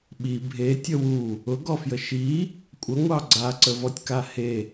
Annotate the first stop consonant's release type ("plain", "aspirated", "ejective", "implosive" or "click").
implosive